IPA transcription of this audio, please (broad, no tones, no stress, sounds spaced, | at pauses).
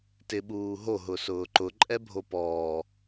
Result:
t ɪ ɓ uː ɦ o ɦ ʊ s ʊː ǃ ʊ ǃʼ ɛ bʱ o p ɔː